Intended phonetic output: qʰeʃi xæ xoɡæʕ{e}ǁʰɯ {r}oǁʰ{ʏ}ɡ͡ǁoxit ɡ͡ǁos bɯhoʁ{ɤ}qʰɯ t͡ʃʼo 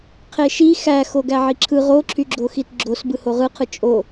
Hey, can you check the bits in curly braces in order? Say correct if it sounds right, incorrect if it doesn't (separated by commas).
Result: incorrect, incorrect, incorrect, incorrect